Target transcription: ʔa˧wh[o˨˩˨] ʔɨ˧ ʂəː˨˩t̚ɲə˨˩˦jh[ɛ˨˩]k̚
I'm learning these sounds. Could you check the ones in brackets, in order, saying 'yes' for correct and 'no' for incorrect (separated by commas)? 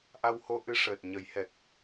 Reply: no, yes